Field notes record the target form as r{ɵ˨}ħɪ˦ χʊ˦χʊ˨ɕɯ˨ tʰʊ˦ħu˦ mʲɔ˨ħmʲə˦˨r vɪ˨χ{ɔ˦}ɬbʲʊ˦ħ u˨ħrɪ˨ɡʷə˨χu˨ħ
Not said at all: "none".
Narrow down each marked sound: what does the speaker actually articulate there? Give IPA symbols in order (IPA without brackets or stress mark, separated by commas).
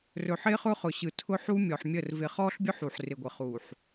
ɵ˨, ɔ˦